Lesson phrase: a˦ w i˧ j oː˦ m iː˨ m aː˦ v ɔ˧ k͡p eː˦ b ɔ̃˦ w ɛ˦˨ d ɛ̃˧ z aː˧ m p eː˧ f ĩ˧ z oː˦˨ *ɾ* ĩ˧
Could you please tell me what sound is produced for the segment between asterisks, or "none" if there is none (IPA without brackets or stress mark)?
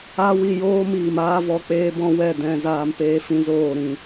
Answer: ɾ